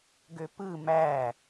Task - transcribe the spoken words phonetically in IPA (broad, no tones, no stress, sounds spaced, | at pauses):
ɡ ø p ɯ m æ